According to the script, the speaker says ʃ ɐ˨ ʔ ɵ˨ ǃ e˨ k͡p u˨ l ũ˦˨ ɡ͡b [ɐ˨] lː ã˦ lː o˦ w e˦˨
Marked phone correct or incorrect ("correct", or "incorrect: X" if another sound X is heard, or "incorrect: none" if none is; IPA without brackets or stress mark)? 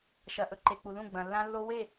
incorrect: ɐ̃˨